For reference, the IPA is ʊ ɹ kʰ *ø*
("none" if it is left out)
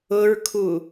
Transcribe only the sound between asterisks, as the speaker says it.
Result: u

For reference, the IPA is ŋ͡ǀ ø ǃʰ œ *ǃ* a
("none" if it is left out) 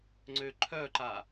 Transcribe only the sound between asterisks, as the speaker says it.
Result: ǃ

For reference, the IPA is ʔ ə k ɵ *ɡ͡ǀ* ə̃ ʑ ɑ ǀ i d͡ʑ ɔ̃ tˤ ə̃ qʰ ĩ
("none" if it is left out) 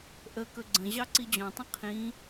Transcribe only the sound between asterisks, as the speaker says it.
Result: ɡ͡ǀ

